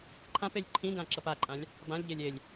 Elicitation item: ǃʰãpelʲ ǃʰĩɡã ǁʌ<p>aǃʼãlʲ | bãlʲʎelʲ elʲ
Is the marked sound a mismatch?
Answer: no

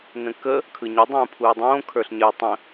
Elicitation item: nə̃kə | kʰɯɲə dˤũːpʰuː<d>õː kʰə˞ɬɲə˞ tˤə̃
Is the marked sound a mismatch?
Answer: yes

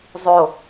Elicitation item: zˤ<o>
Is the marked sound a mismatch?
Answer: no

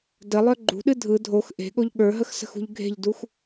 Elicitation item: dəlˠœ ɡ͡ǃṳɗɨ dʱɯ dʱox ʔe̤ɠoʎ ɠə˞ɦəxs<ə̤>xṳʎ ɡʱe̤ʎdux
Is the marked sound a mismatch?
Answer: no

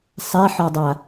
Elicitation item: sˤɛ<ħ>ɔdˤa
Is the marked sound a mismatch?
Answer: no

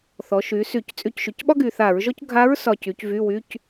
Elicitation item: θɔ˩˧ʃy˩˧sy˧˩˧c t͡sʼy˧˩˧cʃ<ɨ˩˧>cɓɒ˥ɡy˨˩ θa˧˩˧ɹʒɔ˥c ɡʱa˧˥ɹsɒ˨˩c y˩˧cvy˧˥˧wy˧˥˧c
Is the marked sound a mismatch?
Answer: yes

